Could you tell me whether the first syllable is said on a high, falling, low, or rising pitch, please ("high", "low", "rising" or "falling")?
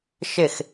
falling